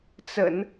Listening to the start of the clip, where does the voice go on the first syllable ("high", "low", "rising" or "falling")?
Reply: low